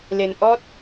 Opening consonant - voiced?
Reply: yes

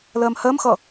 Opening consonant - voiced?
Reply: yes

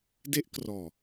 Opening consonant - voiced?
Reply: yes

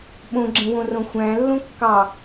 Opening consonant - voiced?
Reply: yes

